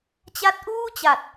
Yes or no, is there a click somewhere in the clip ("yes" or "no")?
no